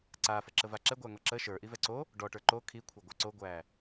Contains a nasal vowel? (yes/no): no